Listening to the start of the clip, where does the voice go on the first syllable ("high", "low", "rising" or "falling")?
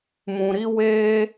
low